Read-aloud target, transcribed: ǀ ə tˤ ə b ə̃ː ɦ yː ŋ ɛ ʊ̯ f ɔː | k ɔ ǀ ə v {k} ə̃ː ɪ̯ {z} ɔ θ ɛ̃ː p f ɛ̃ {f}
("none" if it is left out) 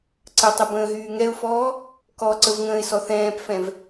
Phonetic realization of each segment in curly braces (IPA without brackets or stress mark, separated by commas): ŋ, s, v